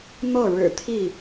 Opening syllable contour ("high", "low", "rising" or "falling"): falling